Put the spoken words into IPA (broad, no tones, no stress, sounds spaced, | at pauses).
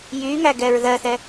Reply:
j y ŋ æ ɡ ɛ ɹ ð ɜ θ ɛ